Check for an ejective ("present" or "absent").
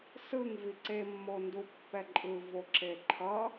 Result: present